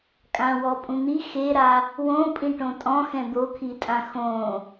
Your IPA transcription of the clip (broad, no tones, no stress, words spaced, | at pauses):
kʼãwɔpʼũn̪i xeɾa | wõpʼĩ ʈõtʼɔ̃xɛ̃ d̪okʰitʼã xõ